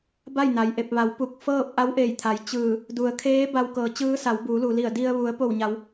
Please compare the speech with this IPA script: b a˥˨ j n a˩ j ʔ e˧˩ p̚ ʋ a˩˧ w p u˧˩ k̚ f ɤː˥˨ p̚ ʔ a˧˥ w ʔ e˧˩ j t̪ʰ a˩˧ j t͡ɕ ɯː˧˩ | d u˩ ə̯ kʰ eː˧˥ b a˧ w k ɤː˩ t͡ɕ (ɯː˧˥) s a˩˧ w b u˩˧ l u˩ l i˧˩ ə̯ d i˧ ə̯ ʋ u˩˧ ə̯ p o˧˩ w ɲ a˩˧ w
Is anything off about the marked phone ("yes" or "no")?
no